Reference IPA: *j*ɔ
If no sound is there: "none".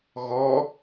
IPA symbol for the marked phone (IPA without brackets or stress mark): ɣ